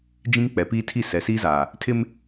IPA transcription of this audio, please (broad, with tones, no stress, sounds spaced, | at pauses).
d͡ʒ ĩ˦ ŋ k͡p ɛ˨ p iː˦ tʰ i˦˨ s ɛ˨ s iː˦ z aː˨ | tʰ ɪ˦ m